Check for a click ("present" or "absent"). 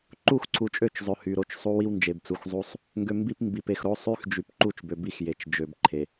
present